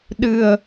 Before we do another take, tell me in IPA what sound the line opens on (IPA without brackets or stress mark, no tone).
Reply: ɗ